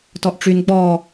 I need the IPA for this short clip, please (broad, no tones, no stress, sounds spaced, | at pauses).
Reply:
t ɔ ʔ ʈ͡ʂ y n ɡ͡b ɔ